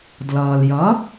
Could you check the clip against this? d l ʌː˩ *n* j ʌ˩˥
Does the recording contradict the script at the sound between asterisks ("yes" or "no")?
yes